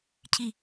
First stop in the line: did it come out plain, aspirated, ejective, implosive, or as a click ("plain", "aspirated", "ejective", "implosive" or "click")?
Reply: aspirated